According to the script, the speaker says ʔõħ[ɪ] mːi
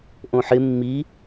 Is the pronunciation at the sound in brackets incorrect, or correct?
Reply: correct